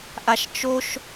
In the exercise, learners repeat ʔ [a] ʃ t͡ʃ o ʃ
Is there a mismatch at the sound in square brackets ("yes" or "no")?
no